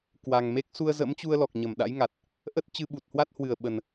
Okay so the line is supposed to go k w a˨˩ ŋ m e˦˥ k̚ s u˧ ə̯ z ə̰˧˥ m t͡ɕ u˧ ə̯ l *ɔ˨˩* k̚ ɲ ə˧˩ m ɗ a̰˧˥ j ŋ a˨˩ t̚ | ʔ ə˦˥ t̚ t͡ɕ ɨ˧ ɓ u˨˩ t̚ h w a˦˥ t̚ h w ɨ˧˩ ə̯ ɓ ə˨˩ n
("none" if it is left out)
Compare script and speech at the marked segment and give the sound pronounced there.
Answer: ɔ˨˩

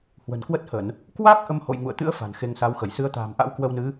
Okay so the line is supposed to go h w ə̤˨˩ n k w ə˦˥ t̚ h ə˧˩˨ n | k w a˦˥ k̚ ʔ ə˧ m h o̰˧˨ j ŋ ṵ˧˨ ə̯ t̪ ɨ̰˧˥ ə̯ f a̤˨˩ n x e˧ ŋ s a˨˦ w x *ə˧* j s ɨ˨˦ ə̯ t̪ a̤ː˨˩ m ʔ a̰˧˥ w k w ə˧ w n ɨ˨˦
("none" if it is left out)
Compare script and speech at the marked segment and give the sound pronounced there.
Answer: ə˧˩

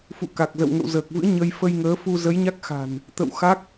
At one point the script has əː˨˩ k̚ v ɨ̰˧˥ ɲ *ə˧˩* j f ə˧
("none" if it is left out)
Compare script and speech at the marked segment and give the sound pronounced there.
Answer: ə˧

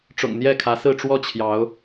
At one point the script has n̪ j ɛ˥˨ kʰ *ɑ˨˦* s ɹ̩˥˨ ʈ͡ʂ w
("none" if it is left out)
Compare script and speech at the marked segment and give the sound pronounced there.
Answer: ä˨˦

